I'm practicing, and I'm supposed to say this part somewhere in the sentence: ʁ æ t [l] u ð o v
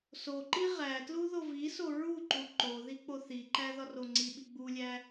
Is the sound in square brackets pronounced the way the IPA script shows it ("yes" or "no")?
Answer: yes